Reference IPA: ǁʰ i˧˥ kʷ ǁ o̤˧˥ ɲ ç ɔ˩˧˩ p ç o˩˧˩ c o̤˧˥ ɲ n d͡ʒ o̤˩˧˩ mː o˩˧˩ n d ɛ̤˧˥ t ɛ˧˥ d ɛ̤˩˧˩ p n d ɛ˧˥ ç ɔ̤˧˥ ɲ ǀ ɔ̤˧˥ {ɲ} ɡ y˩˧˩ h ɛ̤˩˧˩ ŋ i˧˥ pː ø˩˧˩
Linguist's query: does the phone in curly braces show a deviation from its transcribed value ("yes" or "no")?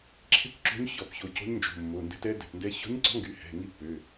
yes